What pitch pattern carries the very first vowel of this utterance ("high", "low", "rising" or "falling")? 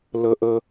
high